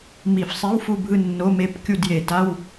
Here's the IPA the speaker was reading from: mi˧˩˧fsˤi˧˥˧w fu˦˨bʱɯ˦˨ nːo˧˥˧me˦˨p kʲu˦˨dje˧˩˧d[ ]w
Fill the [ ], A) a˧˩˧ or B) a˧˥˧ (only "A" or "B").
B